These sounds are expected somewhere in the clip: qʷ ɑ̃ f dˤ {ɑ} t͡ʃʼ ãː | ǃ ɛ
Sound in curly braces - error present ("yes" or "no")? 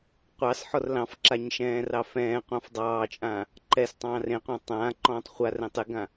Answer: yes